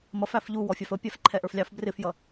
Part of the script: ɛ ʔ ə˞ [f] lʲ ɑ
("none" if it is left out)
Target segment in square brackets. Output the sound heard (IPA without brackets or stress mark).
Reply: f